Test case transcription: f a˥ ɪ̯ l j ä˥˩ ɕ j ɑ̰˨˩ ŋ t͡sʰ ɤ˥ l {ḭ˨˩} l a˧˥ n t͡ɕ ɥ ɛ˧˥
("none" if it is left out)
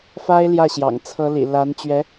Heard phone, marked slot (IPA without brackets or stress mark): ḭ˨˩